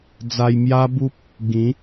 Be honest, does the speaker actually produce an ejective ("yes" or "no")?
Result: no